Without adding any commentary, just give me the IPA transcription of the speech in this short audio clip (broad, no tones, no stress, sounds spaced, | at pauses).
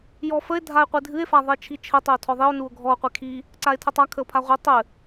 j ɔ f ə e̯ dʱ a e̯ qʷ ɨ dʱ ɨ e̯ f a ðˤ e t͡ʃʰ i t͡ʃʰ ɘ tˤ ɘ o̯ tʰ ɔ ðˤ i o̯ n u o̯ ɡʱ ɔ o̯ qʷ e kʰ i | ǀ a e̯ tʰ ə tˤ a kʰ ə o̯ pʰ a ʁʷ i tˤ ɘ